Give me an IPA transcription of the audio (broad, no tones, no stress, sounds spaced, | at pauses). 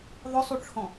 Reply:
ðˤ ʊ sˤ u ʈ͡ʂʰ ɔ̃